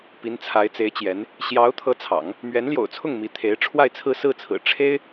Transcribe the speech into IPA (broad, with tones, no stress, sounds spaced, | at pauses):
p i˧˥ n t͡sʰ a˧˥ ɪ̯ t͡s e˧˥ ɪ̯ t͡ɕ j ɛ˧˥ n | ɕ j ɑ˧˥ ʊ̯ t̪ʰ ɤ˧˥ t͡sʰ ɑ̰˨˩˦ ŋ | m ɥ ɛ˧˥ n l j o̰˨˩ ʊ̯ t͡sʰ ʊ˥˩ ŋ m i˧˥ t̪ʰ e˧˥ ɪ̯ ʈ͡ʂʰ w a˥˧ ɪ̯ t͡sʰ ɹ̩˥˧ s ɹ̩˥˩ t͡sʰ ɹ̩˨˩ ʈ͡ʂʰ e˥ ɪ̯